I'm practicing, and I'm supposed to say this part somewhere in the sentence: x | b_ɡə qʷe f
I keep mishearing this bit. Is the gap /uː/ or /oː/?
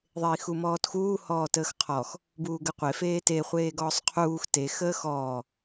uː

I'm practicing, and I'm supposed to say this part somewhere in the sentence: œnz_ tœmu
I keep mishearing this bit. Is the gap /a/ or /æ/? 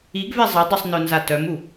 a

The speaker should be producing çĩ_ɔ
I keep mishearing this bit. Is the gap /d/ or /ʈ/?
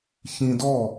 d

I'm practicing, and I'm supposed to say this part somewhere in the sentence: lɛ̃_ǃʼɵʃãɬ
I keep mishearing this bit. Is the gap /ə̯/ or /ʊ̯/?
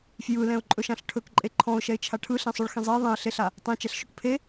ʊ̯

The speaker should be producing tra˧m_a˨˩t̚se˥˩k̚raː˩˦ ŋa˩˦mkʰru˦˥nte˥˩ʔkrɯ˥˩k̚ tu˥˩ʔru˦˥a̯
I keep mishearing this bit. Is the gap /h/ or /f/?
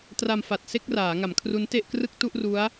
f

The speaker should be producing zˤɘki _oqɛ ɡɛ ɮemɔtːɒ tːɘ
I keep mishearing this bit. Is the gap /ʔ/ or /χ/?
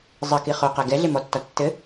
χ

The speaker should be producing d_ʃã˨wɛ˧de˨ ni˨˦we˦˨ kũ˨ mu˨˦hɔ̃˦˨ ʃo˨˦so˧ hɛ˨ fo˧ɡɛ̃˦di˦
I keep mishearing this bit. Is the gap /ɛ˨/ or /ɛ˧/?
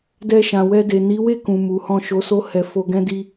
ɛ˧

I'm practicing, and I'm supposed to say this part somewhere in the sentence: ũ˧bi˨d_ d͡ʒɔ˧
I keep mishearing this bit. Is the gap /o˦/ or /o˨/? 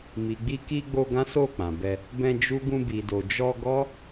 o˨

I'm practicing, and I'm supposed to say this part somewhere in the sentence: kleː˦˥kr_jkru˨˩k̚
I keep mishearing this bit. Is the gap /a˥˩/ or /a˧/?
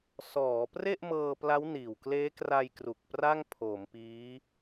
a˧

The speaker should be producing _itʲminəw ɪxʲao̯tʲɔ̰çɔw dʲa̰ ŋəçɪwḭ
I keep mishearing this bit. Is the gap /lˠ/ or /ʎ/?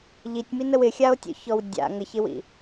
ʎ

